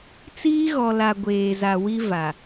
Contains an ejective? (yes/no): no